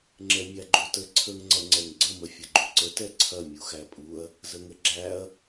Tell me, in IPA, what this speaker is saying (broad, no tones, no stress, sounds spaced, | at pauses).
ŋ͡ǁ ɛ mʲ æ ɡ͡ǃ u t ə ǀʰ ə ŋ ŋ͡ǀ ɐ ŋ͡ǀ ɛ ŋ ɡ͡ǀ ə m ə fʲ ɐ ɡ͡ǃ u ǀ ə t ɛ ǀʰ ɐ mʲ u x æ pʼ u ɐ̯ | z ə ŋ ə ɡ͡ǁ æ ɐ̯